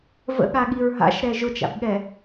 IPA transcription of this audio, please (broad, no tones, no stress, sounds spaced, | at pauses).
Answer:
v ə̰ ɠ a ɠ i ɹ ɦ a̰ ʃ ɾ ɛ ʒ ʊ t͡ʃ a̰ b ɠ ɛ